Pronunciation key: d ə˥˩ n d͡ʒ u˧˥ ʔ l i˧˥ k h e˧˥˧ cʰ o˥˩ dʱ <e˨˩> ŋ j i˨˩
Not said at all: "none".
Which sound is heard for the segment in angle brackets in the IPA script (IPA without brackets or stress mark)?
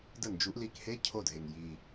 e˨˩